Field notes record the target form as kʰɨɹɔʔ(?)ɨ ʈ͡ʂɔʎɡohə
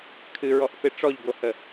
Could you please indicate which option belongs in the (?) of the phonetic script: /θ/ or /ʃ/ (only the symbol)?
θ